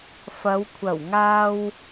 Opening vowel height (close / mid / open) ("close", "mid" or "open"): open